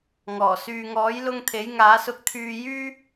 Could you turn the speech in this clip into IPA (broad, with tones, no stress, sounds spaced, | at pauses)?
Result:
ŋ ɔː˨˩ s yː˨ ŋ ɔː˨˥ j l ʊ˧ ŋ t̪ʰ e˨˥ j ŋ aː˨˥ s ʊ˧ k̚ t̪ʰ yː˧ j yː˥